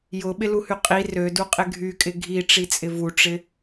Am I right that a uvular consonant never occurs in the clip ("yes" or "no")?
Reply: no